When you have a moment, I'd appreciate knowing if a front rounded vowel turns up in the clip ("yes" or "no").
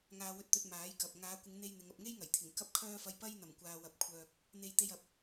yes